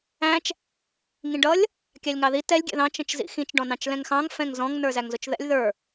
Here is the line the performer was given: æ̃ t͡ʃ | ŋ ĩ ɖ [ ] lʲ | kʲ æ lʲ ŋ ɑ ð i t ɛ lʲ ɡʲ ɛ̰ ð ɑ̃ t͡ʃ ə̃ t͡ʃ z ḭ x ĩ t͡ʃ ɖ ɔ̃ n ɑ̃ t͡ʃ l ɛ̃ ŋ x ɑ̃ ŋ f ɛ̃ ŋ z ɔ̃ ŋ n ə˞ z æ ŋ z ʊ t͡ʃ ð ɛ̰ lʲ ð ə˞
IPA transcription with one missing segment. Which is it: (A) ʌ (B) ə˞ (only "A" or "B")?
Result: A